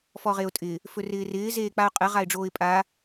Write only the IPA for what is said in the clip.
fɔʁeʊ̯tʼɪ | fɵrɪːrɪː zeːk͡paʊ̯qʼɘ ʁaɪ̯ɖ͡ʐoːɪ̯pʼa

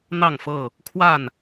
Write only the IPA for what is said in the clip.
n̪ɑ˥˨ŋfɤ˥˨ | kʰwa˥˨n

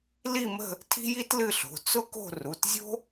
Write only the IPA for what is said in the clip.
li˥˧mə̤˥˧ | tʰi̤˥ji˥tlɨ˥˧ɬo̤˩˧˩ t͡sʊ˥ko̤˥˧ ru˩˧˩tzʲo̤˥

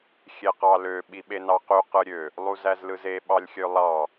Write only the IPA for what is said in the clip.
xʲeqɑlø ɓiɓenɑqy qɯɾʲø | lˠuzæzlɯze ɓɑlʲxʲølˠɑ

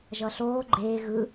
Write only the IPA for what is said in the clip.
ʒʌɬoː ɡ͡ǃeː ɣɯ

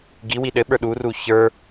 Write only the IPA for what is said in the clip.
ɡiwi ɗɘɓə˞ ɗuru çə˞

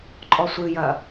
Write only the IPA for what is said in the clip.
ǃʼɔsʷɨjɐ

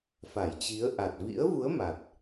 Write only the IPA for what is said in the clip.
fa˧˩jt͡ɕi˨˦ə̯ ʔa˨˩t̚ vḭ˧˥ə̯vu˨˦ə̯ ma˨˩t̚

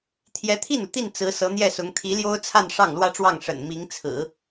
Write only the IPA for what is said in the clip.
t̪ʰjɛ˧˥t̪ʰi˥˩nu˩t̪i˥˩n t͡sɹ̩˧˥sɤ˧˥n̪jɛ˥˩sʊ˧˥ŋ t̪ʰi˧˥ljo˥ʊ̯t͡sʰa˥˧n ʂɑ˥˩ŋlwä˥ʈ͡ʂwɑ˥˩ŋ ʂə̰˨˩n mi˧˥ŋt͡sʰɹ̩˨˩˦

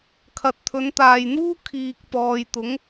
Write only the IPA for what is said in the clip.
kʰɐ˨t̚t̪ʰɵ˨˧nt̪aː˨jn̪uː˥ kʰiː˨k̚ pɔː˨jt̪ʊ˨˥ŋ

